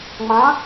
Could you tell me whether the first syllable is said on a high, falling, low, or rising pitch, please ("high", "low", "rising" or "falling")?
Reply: rising